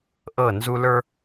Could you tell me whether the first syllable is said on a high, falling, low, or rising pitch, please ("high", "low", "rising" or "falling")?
falling